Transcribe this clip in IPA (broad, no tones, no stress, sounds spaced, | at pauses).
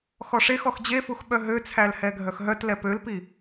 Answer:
x ɔ ʂ e x ɔ x d͡ʑ e f u x ɓ œ ɦ ø t͡sʰ æ l h ɛ ɡʱ œ x ɦ œ t l ɛ p ø l p i